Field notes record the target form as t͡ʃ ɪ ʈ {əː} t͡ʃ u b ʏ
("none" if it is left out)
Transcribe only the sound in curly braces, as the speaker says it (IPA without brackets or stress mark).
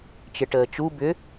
əː